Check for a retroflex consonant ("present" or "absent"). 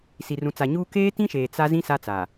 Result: absent